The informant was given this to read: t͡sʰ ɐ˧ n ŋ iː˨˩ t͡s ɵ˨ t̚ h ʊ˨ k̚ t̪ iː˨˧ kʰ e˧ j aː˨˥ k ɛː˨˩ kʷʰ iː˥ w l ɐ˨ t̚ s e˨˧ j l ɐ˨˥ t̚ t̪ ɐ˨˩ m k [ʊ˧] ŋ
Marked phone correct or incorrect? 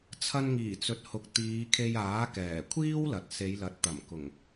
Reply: incorrect: ʊ˨˩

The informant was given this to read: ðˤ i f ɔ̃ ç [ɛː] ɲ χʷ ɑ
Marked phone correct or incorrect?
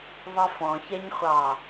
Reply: incorrect: ɛ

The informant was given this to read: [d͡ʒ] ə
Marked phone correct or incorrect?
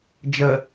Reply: correct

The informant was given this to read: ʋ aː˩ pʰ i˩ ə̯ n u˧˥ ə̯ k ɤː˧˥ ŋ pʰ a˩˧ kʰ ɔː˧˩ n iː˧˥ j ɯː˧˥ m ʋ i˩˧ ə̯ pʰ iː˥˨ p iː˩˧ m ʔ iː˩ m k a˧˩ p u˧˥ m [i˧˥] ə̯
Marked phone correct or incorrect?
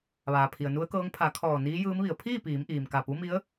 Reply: correct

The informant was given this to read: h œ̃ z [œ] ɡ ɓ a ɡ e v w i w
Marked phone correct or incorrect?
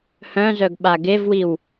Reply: correct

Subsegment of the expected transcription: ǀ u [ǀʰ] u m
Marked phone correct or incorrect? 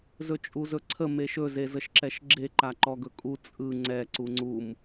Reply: incorrect: ŋ͡ǀ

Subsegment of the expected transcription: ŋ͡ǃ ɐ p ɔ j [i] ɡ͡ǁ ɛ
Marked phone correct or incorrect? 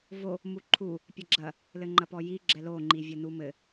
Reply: correct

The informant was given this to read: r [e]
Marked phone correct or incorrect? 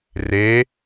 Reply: correct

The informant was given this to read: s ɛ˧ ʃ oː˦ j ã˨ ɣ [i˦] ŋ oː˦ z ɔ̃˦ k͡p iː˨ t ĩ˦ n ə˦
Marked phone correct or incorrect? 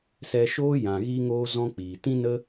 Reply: correct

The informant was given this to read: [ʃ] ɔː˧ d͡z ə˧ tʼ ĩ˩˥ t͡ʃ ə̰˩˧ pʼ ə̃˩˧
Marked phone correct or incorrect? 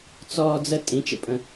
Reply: incorrect: t͡s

